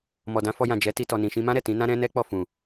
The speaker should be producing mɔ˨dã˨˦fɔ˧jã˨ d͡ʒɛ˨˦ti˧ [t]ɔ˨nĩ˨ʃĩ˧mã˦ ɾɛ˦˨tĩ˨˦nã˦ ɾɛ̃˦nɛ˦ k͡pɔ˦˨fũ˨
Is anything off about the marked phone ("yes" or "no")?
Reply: no